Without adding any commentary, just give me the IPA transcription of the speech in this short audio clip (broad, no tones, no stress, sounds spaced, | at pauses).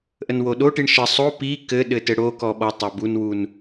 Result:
ʔ ə n w o ɗ o ʈ i ɳ ʃ ə sˤ o p i k ɘ ɗ ɘ t ɘ ɽ o k ɔ ɓ ɔ tˤ a b u n w u n